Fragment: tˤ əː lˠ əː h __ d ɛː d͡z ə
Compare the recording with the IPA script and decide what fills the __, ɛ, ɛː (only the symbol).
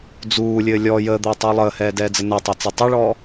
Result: ɛː